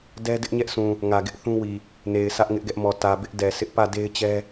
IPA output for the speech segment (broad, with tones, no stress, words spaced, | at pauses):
dɛ˦dɪ˦ʔɲɛ˦ʔsũ˨ | ŋä˨ɡɪ˦ʔθũ˦wi˨ | ne˨ɪ̯sʰä˦ʔ ŋɪ˦ʔɡɛ˦ʔmɔ˨ tä˨bɪ˦ʔ dɛ˨ sʰɪ˦ʔpä˦˨de˦ɪ̯t͡ɕɛ˦